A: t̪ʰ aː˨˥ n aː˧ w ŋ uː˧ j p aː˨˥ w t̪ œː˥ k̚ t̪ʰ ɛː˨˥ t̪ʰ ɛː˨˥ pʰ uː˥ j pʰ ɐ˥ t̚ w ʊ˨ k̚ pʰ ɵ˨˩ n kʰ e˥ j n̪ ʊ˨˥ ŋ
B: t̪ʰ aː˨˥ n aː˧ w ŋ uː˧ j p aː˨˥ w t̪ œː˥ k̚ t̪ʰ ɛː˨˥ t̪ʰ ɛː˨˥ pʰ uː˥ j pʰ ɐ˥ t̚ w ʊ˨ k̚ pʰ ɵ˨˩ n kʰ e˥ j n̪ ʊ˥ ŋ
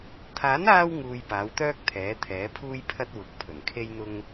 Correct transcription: B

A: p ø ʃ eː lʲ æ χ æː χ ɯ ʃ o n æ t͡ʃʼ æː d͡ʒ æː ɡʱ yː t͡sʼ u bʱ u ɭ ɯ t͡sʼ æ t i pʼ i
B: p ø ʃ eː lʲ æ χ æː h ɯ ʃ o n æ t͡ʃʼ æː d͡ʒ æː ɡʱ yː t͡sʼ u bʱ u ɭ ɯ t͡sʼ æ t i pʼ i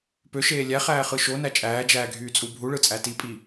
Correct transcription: A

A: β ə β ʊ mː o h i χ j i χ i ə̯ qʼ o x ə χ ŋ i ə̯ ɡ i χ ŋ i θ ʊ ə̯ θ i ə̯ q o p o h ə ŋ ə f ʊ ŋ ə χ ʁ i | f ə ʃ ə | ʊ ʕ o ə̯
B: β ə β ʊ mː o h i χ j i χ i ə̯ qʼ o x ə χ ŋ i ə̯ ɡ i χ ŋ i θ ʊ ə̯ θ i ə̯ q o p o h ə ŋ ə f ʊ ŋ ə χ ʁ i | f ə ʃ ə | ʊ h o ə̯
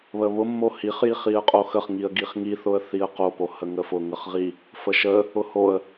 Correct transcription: B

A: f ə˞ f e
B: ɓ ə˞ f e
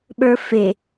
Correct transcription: B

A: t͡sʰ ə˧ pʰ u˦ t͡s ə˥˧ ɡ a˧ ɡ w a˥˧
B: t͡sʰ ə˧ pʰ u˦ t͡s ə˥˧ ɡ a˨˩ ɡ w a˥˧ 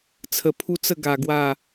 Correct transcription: B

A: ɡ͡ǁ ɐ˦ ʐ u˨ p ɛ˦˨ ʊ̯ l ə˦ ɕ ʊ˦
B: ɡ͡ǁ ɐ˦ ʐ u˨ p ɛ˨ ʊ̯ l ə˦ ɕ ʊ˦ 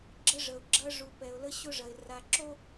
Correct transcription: B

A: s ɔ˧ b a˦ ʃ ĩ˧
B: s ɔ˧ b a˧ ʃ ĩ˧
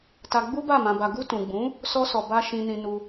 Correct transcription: A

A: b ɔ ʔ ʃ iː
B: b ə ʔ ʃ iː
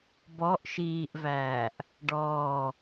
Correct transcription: A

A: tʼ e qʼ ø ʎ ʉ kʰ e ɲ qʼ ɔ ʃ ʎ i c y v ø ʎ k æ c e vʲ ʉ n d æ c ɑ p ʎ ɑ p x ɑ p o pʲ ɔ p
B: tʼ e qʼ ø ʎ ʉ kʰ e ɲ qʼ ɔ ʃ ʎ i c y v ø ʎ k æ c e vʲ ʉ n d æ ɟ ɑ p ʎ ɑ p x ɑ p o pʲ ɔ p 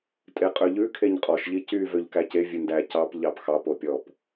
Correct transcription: A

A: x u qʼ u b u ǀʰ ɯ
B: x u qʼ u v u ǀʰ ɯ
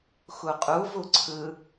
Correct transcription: B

